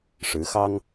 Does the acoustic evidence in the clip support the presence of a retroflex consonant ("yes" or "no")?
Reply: yes